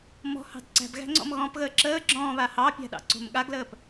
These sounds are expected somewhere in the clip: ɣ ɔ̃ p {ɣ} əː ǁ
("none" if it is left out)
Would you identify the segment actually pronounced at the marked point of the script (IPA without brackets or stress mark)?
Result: ɣ